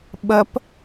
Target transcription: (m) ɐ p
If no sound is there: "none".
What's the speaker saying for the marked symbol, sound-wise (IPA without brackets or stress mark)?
ɓ